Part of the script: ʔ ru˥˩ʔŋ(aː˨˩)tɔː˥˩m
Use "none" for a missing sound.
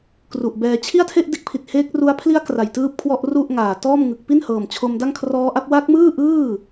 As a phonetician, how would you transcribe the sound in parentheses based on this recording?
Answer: aː˨˩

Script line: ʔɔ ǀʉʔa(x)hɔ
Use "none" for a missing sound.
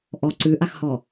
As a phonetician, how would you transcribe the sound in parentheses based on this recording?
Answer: x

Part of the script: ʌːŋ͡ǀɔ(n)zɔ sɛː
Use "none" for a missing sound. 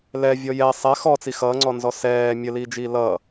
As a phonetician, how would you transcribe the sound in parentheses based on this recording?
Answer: n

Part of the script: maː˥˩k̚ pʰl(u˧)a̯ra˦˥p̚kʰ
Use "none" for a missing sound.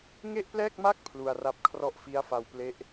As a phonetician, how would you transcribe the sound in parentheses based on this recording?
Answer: u˧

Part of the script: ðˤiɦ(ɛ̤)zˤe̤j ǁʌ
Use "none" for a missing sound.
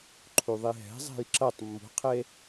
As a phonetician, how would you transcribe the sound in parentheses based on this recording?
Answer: ɛ̤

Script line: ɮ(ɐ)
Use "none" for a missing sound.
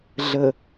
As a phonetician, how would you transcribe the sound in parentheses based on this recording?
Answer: ə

